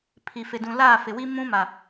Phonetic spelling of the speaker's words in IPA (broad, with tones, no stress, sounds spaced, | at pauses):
pʰ i˨ f ɪ˨ d ũ˨ l aː˦˨ f ɪ˨ w i˦ m ũ˦ m a˨